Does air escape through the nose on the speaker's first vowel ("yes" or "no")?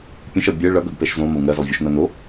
yes